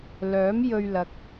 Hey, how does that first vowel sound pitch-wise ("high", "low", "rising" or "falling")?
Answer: rising